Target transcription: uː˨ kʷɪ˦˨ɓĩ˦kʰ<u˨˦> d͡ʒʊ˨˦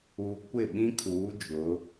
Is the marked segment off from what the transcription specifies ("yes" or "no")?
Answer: yes